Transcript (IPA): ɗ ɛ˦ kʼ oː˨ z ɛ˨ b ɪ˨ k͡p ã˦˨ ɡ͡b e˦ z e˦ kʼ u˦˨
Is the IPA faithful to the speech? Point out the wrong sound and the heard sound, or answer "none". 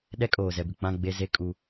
u˦˨ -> u˦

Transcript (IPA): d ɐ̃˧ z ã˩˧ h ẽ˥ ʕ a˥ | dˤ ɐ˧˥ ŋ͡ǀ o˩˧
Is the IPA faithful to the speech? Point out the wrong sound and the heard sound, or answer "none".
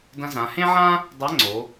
a˥ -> ã˥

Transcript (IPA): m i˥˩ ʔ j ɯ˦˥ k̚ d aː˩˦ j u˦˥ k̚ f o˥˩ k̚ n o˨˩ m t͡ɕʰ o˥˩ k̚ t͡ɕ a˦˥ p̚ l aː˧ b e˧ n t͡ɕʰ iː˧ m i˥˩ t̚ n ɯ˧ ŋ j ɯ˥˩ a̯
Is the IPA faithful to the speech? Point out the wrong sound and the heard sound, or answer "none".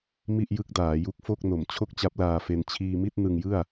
b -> f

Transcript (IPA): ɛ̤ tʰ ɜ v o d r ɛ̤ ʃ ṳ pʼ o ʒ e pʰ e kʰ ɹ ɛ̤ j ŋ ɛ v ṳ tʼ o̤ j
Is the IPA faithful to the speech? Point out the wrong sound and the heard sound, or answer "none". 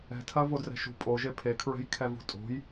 ŋ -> kʰ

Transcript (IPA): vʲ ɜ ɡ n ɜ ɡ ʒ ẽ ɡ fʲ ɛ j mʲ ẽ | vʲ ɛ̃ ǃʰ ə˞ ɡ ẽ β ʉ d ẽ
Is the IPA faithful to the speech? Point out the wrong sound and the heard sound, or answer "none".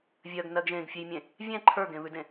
none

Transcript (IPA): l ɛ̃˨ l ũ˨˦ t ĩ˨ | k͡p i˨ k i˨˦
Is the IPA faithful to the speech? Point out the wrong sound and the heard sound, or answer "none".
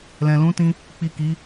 ĩ˨ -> ĩ˧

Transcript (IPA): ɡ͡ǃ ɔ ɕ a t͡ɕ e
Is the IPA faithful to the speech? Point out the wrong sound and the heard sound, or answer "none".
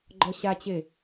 none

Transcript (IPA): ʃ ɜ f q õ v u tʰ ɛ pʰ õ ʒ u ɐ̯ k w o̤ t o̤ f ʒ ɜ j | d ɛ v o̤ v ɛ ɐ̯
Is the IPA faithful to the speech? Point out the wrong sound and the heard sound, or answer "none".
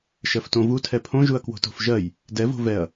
q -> t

